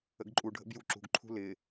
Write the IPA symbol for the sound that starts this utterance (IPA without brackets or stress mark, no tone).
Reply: ə̰